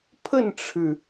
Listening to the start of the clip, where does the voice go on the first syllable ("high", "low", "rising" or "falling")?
falling